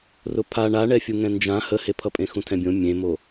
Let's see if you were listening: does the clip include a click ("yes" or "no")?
no